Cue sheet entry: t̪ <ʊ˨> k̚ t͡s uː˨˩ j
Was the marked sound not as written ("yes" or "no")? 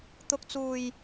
no